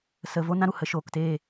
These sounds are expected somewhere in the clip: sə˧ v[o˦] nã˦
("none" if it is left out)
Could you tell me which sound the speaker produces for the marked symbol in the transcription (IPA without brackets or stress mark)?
o˦